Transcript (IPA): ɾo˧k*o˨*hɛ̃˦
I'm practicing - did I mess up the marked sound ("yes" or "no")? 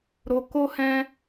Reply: yes